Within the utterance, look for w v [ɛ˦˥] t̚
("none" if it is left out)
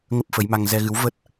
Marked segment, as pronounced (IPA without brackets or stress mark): ə˦˥